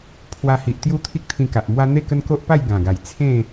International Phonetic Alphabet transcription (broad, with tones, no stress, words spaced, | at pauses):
pʰwa˧hi˨ʔt̪ju˦ t̪ʰi˦k̚t̪ʰĩ˧ka˨ʔmwa˦ n̪e˥˧kə˦nko˦ʔ pa˥˧jɡã˨˩ɡa˨˩j t͡sʰẽ˥˧